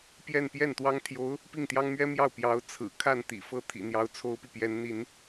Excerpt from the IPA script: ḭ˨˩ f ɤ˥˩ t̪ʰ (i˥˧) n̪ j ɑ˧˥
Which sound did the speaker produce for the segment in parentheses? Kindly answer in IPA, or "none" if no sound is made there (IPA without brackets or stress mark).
ḭ˨˩